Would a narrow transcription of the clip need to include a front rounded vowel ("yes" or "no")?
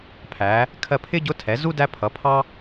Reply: no